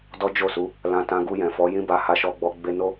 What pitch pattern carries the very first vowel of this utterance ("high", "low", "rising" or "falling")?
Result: high